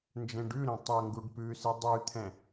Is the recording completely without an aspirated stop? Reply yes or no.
no